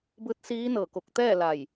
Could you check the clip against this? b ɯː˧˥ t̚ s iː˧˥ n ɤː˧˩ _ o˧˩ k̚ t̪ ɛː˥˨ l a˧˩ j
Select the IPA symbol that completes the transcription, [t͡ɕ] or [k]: k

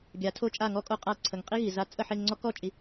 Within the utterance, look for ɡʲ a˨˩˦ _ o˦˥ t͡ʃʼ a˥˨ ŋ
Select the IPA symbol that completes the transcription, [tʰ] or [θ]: tʰ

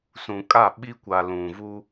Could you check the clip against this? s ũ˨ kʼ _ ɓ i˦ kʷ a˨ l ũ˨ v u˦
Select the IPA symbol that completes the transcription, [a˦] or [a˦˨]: a˦˨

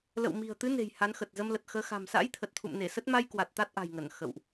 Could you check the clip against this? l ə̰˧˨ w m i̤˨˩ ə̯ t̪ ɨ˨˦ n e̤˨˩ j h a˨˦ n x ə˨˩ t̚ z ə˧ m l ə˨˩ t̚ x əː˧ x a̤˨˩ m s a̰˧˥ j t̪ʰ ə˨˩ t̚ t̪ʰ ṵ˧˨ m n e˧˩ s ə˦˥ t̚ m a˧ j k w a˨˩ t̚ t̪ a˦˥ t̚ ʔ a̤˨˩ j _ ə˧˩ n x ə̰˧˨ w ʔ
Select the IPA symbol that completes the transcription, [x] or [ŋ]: ŋ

